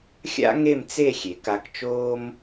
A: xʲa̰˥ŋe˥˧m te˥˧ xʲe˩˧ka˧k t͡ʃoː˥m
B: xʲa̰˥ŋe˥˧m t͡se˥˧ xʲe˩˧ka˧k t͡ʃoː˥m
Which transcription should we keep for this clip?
B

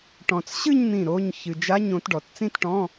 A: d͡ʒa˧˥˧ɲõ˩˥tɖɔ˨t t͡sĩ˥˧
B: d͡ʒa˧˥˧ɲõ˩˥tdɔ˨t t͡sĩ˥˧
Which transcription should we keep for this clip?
A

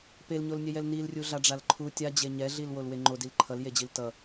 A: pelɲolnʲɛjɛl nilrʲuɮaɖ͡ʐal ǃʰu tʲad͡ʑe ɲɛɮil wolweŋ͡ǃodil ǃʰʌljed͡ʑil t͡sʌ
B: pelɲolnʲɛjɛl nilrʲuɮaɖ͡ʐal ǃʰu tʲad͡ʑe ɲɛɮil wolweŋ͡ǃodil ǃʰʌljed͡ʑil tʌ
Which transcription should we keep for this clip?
B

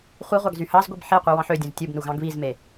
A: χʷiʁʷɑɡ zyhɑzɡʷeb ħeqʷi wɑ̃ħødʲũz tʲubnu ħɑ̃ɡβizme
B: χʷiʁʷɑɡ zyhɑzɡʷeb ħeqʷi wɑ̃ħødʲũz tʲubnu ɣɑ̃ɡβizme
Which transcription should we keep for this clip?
B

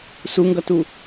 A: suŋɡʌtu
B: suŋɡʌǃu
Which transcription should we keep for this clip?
A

